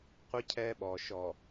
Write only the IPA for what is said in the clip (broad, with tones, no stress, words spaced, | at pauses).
qʷɪ˦ cʰɛː˦ɓɔː˨ ʃɔ˨